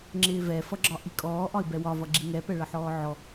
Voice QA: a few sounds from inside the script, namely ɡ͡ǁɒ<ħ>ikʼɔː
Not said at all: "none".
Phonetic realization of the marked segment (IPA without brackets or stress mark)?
ʔ